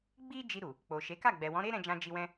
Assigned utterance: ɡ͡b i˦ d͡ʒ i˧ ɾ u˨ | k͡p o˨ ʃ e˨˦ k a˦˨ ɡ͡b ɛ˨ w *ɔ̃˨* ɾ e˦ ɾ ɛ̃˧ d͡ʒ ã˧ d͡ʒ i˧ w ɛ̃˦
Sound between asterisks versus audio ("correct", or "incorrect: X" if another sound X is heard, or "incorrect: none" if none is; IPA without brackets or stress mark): incorrect: ɔ̃˨˦